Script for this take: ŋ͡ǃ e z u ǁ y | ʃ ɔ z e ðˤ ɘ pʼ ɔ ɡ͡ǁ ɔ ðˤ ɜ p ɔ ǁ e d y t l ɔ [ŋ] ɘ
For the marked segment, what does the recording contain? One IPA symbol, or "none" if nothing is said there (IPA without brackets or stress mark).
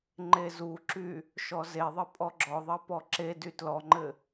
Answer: ŋ͡ǃ